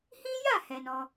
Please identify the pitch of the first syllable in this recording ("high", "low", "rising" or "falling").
high